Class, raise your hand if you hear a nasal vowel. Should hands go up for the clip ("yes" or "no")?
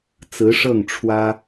no